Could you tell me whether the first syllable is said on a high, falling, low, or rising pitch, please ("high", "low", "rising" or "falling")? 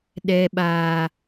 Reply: high